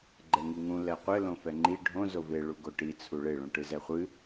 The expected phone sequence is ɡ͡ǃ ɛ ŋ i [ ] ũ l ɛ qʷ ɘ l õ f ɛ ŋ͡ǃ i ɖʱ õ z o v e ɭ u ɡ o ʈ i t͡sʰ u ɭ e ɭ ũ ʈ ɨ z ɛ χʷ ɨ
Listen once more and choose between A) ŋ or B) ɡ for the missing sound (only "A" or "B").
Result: A